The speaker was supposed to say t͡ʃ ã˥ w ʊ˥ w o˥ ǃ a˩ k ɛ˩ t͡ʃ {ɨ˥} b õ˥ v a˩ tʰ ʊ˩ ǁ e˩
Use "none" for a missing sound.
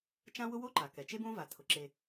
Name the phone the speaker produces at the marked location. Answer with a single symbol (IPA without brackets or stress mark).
e˥